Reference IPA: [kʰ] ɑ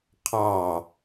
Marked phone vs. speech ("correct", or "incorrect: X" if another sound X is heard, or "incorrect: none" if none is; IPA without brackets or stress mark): incorrect: qʰ